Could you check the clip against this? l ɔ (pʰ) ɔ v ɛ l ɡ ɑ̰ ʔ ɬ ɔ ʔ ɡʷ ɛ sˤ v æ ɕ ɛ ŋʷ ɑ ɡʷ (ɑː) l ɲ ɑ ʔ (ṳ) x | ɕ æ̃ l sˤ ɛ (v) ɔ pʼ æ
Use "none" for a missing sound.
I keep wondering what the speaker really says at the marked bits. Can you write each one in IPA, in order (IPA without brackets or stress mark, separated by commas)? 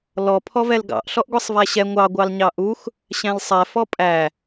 pʰ, ɑ, u, f